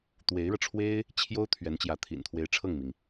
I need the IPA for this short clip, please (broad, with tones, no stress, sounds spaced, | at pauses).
t̪ w e˧˥ ɪ̯ ɻ ɤ˧ ʈ͡ʂʰ w e˥ ɪ̯ | t͡ɕʰ j o˥ ʊ̯ t̪ʰ ɥ ɛ˧˥ n t͡ɕ j ä˧˥ t̪ʰ ḭ˨˩ n t̪ʰ w e˧˥ ɪ̯ ʈ͡ʂʰ ɤ˥˩ ŋ m i˩ ŋ